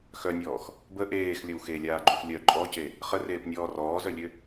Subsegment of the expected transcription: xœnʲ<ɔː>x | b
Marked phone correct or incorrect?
correct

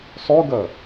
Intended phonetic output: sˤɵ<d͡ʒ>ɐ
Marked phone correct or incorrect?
incorrect: ɡ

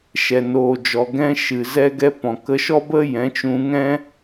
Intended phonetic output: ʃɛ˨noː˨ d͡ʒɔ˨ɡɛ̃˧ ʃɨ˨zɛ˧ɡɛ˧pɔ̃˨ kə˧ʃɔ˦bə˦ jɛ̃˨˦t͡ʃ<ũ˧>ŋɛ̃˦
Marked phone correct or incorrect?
correct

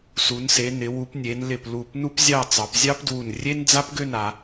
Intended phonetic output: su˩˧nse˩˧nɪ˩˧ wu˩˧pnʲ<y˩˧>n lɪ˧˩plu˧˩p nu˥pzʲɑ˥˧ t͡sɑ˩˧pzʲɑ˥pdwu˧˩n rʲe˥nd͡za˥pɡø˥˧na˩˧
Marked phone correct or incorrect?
incorrect: e˩˧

